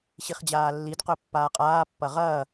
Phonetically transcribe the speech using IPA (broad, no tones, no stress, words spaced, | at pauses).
ɕiχd͡ʑaːlːid qɵpːaːqʼaː pːɐʁɐː